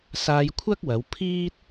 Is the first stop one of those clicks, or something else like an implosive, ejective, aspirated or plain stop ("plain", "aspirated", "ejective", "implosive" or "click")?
aspirated